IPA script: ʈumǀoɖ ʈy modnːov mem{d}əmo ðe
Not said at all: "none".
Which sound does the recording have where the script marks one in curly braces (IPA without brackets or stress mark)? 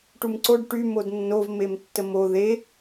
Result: tː